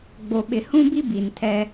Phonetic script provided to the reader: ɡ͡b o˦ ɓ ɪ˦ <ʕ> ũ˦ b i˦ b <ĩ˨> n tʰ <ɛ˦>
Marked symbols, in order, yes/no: no, no, yes

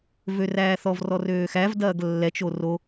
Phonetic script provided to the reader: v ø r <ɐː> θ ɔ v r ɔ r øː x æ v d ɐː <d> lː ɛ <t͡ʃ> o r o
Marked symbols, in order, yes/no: no, no, yes

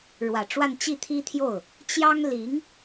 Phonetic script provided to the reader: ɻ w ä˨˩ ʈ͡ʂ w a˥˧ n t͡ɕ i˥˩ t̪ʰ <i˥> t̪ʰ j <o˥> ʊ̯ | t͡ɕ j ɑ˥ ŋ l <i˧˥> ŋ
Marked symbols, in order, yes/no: yes, no, yes

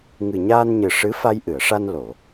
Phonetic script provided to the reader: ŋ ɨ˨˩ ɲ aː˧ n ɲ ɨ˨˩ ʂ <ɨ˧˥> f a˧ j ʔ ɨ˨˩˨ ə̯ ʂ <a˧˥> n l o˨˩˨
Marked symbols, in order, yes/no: yes, no

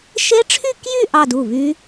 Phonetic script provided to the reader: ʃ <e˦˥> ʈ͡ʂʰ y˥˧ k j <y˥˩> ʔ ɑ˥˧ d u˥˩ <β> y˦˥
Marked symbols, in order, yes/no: yes, no, yes

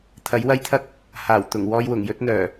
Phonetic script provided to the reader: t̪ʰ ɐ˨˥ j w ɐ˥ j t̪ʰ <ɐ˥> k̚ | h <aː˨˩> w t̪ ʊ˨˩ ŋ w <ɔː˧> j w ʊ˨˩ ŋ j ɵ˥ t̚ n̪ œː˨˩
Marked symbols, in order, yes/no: yes, yes, yes

